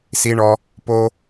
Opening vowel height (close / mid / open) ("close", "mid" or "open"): close